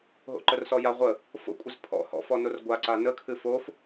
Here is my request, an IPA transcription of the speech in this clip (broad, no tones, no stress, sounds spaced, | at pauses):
ɦ o̰ ǃ ə r s ɔ j a ʁʷ ə | f o̰ kʷʼ ɘ z pʰ ɔ̰ h ɔ̰ f ɔ n o r ɡʷ a ǀ a n ə kʰ ɨ f o f